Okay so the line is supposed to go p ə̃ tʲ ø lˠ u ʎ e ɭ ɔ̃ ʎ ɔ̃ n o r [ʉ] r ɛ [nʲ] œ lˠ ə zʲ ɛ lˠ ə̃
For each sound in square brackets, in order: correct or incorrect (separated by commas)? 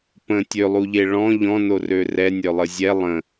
incorrect, correct